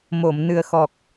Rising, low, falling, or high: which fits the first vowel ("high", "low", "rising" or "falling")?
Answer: low